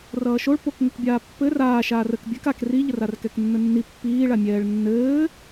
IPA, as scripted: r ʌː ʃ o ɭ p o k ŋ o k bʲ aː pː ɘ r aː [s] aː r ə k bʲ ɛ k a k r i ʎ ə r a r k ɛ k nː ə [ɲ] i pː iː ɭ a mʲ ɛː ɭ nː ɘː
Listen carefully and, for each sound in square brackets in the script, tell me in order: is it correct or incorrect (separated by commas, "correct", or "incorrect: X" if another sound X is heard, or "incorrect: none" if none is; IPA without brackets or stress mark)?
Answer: incorrect: ʃ, incorrect: nː